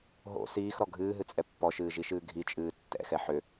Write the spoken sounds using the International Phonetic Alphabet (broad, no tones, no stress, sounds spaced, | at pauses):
ɦ o̰ s iː x ɾ ɔ ɡʱ ɨː ɦ ɨ t͡sʼ ɛ pː ɔ ʃ ɨː ʒ i ʃ ɨː ɡʱ i t͡ʃʼ ɨː tː ɛ̰ x ɛ ħ ʏ